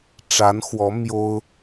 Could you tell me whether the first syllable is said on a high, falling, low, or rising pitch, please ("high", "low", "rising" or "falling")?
rising